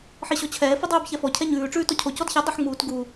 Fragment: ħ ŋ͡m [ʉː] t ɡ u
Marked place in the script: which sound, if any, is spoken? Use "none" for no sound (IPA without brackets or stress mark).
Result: uː